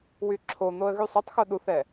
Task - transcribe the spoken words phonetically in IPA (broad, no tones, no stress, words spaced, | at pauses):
wyǁʰon̪oə̯ ɣysˤetˤxo ɗuθɛ